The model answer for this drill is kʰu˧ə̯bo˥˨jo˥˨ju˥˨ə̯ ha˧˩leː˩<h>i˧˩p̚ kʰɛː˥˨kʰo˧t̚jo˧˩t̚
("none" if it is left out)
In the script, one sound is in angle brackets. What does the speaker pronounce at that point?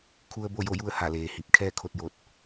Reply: h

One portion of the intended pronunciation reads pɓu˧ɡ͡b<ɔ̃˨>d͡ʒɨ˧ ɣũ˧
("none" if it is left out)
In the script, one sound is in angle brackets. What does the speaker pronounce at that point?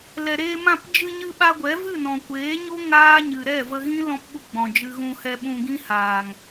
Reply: ɔ̃˨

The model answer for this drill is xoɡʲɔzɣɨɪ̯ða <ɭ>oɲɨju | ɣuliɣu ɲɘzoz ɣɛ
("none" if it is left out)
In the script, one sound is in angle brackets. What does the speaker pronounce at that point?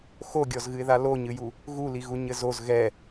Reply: l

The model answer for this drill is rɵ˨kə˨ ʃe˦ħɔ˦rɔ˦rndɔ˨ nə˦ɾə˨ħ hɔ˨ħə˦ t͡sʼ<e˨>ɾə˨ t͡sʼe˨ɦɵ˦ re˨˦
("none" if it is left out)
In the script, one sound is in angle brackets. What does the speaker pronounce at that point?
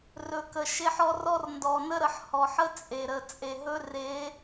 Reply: e˨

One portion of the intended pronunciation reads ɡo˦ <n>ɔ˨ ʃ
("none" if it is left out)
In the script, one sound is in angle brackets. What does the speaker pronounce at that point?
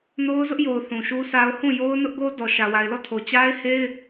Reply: d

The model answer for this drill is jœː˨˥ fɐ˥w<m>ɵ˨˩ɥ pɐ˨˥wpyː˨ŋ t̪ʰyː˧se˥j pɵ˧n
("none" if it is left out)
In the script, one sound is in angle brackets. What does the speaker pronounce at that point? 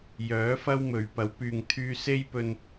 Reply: m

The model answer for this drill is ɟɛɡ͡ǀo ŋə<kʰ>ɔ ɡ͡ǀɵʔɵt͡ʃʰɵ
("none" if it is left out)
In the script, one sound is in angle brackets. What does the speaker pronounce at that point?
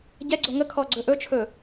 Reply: kʰ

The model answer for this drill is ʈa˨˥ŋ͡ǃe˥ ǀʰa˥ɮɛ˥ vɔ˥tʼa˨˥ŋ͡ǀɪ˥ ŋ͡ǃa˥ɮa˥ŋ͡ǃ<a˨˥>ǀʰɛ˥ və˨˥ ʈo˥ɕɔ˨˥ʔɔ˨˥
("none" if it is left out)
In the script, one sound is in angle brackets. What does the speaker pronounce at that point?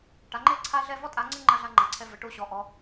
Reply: a˨˥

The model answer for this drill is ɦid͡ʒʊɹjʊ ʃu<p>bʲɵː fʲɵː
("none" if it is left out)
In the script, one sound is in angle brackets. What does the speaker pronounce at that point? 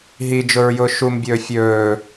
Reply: m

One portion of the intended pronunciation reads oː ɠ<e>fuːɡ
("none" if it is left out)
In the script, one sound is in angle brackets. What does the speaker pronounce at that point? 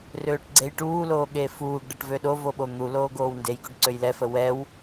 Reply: e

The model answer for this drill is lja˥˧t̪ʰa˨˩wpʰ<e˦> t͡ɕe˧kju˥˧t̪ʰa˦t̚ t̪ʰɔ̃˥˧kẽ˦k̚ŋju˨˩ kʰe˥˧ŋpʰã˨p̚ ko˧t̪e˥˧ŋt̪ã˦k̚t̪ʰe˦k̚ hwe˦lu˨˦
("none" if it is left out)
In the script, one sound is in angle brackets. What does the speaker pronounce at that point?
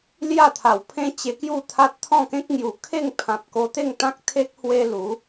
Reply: ẽ˦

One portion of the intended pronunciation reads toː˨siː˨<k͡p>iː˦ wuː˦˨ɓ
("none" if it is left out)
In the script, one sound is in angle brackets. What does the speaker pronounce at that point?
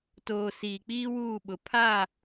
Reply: k͡p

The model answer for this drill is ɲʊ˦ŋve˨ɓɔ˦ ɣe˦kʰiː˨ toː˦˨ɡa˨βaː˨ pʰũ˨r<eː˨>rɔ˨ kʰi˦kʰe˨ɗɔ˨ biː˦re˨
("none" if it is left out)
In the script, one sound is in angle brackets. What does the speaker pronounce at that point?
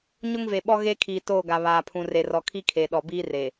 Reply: e˨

